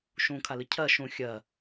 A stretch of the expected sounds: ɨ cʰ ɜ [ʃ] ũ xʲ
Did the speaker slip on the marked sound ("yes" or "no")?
no